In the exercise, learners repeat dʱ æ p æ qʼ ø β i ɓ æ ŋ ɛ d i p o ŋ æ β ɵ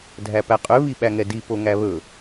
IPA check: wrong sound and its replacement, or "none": none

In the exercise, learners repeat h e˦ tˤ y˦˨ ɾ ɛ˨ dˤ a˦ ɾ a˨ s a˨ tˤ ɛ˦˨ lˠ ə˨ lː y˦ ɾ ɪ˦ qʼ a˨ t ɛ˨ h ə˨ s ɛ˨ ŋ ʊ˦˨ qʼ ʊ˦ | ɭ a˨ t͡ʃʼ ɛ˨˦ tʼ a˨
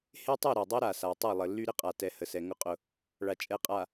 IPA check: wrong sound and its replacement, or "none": tʼ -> qʼ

